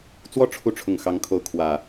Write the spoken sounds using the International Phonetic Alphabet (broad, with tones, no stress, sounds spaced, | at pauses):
t͡s w ɔ˥˨ ʈ͡ʂʰ u˨˦ ʈ͡ʂʰ ʊ˨˩ ŋ x ɑ˨˦ ŋ kʰ o˨˦ ʊ̯ kʰ w ä˨˩